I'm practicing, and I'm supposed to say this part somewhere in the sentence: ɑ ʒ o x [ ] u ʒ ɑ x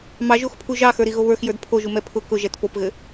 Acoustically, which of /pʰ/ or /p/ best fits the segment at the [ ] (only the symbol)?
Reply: pʰ